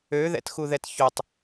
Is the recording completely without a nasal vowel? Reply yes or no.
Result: yes